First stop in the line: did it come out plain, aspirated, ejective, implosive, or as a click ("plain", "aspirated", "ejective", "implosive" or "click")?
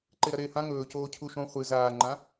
click